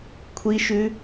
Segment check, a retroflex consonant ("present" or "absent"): absent